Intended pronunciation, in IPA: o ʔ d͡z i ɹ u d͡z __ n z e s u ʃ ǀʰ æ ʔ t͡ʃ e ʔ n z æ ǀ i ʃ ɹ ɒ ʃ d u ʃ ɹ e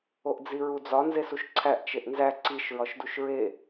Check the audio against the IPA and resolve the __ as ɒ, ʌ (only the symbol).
ɒ